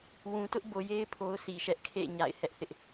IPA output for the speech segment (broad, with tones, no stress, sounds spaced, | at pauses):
w ũ˨ t ʊ˦ ʔ b o˨ j e˦ ɪ̯ pʰ o˦ ʊ̯ sʰ i˨ ʃ ɛ˦ ʔ kʰ ḛ˦˨ ɲ a̰˦˨ ɪ̯ h ɛ˦ ʔ θ ɪ˦ ʔ